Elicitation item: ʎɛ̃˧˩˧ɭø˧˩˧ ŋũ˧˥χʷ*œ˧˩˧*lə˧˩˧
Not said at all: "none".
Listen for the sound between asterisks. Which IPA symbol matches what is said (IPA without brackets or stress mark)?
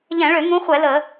ɛ˧˩˧